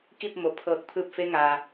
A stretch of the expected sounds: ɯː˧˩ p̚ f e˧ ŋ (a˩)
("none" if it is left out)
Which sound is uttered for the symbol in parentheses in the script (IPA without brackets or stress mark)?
aː˩